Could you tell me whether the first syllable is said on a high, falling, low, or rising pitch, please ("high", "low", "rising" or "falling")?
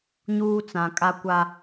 high